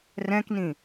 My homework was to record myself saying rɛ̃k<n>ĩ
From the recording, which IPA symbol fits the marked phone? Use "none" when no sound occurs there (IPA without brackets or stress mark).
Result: n